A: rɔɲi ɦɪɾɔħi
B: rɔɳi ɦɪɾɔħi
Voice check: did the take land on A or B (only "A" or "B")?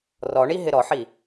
B